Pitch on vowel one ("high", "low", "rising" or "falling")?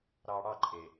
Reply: low